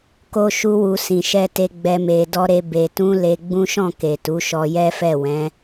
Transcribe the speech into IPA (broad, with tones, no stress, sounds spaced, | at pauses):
k o˦ ʃ u˦ w u˧ s ĩ˨ ʃ ɛ˧ t e˧ ɡ͡b ɛ˦ m e˧ d ɔ˦ ɾ e˦ b e˧ t ũ˦ l e˧ ɡ͡b ũ˦ ʃ ɔ̃˦˨ k e˨ t u˨˦ ʃ ɔ˧ j ɛ˦ f ɛ˦˨ w ɛ̃˨˦